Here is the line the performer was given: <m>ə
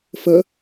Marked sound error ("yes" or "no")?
yes